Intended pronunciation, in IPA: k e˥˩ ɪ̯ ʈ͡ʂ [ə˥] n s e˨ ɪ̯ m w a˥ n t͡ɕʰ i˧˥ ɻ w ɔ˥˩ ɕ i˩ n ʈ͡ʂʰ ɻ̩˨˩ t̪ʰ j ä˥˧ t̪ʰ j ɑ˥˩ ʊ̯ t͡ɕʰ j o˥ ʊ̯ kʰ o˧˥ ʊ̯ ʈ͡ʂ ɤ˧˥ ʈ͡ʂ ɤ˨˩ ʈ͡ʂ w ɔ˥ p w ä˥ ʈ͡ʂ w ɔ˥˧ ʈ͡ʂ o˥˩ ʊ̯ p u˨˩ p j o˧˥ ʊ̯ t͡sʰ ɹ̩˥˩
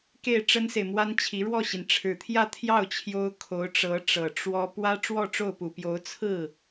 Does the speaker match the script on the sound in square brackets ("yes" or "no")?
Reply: yes